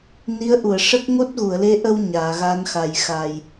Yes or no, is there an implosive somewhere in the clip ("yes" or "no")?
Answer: no